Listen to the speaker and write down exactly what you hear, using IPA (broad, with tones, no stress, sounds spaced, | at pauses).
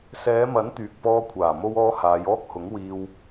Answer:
s ɛː˨˧ m ɐ˨˥ n t̪ yː˨ k̚ p ɔː˧ kʷʰ aː˨˩ m o˧ w ɔː˧ h aː˨˧ j ɔː˥ k̚ h ʊ˨˥ ŋ w iː˧ w